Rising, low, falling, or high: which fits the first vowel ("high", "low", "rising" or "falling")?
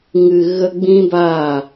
low